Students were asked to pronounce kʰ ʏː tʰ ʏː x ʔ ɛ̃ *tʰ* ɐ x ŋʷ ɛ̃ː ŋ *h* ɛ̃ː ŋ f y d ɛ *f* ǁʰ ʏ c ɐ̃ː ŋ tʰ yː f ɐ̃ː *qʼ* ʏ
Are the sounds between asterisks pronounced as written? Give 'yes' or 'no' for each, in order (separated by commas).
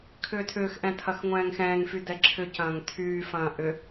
yes, no, no, no